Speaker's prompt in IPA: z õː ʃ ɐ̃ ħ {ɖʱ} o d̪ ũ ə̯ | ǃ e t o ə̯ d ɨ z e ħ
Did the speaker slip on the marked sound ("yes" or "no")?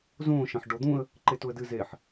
yes